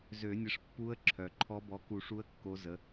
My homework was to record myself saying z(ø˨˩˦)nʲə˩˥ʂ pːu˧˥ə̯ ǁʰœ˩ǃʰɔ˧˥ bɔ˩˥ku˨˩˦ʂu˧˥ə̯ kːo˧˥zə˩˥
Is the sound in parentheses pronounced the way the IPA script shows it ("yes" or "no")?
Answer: yes